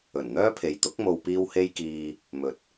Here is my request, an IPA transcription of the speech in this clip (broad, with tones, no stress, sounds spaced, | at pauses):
ɵ˨˩ n n̪ œː˥ pʰ e˨ j t̪ ʊ˨˥ k̚ m o˨ w p iː˧ w h e˧ j k iː˨ | m ɵ˨˥ t̚